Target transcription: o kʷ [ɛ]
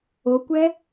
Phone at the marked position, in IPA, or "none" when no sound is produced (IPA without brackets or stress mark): ɛ